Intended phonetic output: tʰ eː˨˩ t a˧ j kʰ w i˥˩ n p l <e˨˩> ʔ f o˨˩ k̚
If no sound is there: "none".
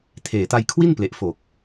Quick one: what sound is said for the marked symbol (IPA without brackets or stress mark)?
e˨˩